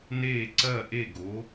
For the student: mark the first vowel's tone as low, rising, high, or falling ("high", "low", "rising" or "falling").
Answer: falling